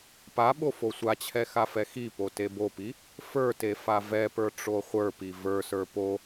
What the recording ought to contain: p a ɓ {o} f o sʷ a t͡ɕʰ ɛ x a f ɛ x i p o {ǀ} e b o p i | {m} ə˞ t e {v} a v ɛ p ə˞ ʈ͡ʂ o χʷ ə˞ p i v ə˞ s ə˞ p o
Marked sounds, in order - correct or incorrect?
correct, incorrect, incorrect, incorrect

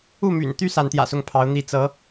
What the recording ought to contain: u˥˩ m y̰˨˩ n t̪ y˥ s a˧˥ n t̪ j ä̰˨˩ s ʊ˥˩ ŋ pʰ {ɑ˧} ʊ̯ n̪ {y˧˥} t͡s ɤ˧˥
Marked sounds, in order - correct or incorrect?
incorrect, incorrect

